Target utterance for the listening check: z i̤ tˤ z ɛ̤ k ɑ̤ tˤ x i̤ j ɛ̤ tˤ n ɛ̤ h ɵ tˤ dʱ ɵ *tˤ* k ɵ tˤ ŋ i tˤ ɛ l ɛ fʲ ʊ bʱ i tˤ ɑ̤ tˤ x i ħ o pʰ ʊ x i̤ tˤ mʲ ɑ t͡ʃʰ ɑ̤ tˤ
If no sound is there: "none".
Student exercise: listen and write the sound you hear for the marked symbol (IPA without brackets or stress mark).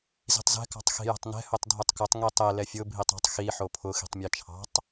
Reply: tˤ